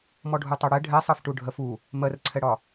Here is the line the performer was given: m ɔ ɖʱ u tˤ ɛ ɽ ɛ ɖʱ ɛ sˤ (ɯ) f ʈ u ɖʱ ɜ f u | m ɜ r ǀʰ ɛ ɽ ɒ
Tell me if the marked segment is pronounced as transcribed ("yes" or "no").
yes